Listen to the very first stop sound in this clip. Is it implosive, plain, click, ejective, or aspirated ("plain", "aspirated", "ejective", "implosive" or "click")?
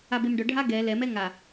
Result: plain